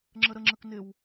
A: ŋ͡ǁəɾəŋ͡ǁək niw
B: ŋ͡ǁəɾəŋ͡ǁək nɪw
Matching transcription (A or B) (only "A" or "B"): B